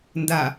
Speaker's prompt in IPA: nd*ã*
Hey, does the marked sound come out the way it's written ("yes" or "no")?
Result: no